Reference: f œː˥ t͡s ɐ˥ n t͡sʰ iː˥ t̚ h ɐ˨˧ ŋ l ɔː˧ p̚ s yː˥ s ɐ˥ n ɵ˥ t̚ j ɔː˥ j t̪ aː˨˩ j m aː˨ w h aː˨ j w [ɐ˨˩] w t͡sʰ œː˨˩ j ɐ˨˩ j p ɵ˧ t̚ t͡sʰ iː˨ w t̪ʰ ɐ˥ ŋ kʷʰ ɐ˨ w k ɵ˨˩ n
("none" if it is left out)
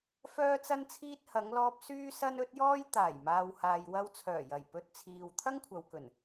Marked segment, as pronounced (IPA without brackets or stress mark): ɐ˧